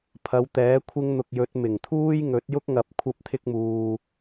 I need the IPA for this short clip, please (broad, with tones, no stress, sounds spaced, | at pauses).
pʰ ɐ˨˧ w t̪ ɛː˨˥ kʷʰ ɪ˥ ŋ n̪ ʊ˧ k̚ j ɵ˨˥ t̚ m ɪ˨˩ ŋ t̪ʰ uː˥ j ŋ ɵ˨˥ t̚ j ʊ˥ k̚ ŋ ɐ˨˥ p̚ kʷʰ ɐ˥ p̚ t̪ʰ ɪ˥ k̚ m uː˧